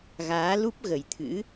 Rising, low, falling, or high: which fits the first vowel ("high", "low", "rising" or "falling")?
rising